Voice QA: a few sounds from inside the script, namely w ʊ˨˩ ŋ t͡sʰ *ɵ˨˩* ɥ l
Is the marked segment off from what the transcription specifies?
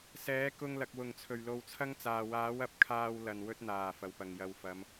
no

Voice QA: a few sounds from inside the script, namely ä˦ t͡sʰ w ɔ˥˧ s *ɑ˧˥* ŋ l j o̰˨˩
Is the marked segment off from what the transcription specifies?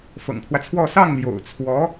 yes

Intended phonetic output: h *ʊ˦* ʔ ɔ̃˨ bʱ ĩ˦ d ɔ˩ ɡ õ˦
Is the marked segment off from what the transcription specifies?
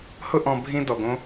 no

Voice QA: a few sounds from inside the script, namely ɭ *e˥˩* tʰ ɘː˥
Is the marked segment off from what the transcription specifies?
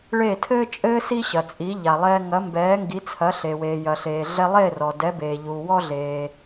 no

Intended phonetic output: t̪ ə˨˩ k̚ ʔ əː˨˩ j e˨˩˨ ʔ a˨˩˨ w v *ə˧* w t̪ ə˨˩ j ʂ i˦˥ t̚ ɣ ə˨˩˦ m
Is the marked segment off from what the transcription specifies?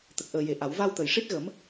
yes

